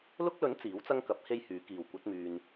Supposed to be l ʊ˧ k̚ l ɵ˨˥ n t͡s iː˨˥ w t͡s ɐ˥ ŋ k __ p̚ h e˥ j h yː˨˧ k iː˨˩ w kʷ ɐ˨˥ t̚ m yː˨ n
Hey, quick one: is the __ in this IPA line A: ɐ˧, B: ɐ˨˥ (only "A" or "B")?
B